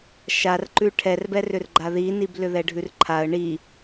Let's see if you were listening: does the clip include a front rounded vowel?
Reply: yes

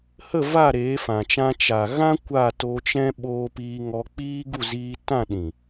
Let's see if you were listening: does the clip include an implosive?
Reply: yes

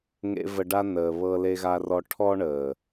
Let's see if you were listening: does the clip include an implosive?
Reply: no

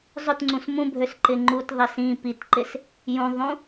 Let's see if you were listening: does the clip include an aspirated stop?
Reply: no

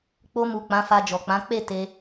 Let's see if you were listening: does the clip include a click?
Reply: no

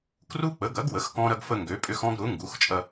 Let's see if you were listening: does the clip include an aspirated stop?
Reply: no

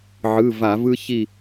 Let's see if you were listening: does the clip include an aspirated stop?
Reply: no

